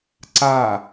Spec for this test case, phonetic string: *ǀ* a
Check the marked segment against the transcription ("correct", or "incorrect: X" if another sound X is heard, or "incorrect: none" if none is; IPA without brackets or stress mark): correct